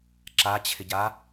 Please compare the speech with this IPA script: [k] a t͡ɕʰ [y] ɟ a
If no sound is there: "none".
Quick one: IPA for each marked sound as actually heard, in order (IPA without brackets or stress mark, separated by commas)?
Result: ǁ, ɪ